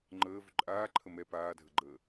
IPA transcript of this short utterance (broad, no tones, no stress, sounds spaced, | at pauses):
ŋ͡ǃ əː v ʏ ǃʼ aː ǃʰ ə m ɛ p aː dʱ ə ɡ͡ǃ əː